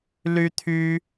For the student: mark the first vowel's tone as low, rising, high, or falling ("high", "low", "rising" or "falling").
high